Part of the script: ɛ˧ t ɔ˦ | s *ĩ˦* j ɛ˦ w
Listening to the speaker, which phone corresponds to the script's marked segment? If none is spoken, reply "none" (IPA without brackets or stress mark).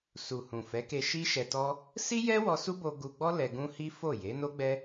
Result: i˦